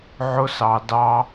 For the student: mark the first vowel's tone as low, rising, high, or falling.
high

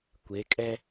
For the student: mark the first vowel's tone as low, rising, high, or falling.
rising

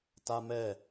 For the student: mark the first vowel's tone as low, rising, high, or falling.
high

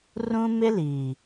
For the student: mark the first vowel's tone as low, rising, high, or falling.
high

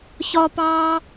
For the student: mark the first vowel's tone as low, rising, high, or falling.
high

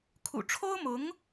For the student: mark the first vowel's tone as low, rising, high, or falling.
low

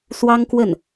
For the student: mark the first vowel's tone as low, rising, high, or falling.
high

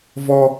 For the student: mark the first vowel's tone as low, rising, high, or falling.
high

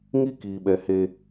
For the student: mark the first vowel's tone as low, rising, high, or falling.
high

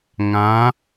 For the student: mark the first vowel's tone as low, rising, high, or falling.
rising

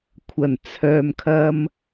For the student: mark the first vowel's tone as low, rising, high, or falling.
low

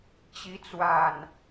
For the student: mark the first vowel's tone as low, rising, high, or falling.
rising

